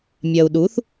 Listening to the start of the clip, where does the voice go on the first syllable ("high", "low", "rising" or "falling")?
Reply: low